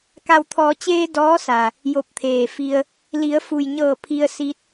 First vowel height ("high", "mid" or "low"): low